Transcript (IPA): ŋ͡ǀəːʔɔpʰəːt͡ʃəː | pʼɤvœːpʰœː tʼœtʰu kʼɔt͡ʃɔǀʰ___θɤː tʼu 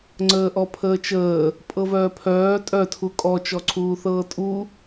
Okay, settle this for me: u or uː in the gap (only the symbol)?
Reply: uː